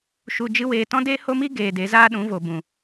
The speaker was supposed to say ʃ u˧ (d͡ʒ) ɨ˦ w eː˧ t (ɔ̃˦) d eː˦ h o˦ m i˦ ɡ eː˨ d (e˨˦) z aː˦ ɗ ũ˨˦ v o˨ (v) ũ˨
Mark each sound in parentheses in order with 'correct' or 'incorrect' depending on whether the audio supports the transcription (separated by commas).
correct, correct, correct, incorrect